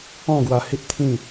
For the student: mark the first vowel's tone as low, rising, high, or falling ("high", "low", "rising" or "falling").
falling